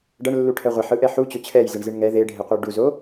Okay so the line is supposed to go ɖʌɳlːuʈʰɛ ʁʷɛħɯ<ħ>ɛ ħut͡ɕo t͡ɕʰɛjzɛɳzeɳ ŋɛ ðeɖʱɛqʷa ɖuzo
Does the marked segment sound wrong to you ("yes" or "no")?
yes